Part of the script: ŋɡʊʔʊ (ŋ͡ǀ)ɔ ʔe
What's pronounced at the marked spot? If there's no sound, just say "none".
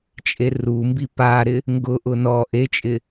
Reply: n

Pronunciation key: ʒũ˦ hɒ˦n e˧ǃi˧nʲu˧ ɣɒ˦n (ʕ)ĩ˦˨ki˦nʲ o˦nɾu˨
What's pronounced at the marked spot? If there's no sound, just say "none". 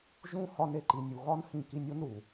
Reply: h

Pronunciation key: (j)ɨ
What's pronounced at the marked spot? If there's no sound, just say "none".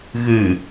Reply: ɣ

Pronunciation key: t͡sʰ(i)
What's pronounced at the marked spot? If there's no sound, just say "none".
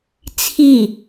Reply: i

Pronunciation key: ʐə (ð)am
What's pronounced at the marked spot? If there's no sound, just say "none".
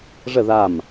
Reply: ð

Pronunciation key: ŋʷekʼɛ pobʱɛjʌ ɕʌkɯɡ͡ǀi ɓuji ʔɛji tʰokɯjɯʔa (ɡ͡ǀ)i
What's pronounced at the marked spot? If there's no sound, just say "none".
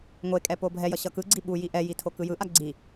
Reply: ɡ͡ǀ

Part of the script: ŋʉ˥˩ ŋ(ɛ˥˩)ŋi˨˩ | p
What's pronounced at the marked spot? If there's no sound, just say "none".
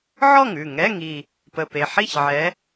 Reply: ɛ˧˥˧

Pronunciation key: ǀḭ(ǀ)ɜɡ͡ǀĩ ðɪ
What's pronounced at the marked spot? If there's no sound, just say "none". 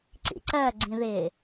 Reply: ǀ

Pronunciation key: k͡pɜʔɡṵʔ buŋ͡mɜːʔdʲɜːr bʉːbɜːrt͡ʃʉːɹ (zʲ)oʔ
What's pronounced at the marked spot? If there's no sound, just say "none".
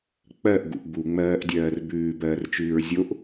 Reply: zʲ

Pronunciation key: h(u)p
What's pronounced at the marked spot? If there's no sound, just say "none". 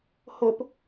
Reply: o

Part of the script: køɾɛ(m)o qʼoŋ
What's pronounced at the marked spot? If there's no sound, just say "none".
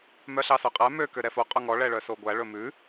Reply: f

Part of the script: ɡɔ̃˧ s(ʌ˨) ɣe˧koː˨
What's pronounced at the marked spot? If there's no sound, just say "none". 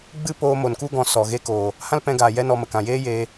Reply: ɔ˨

